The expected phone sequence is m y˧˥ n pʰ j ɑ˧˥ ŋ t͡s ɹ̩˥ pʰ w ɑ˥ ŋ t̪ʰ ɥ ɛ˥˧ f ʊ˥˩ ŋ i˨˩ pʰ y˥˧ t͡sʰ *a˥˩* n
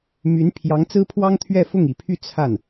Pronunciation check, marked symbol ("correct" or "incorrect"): correct